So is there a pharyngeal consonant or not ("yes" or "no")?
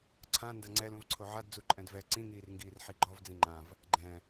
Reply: yes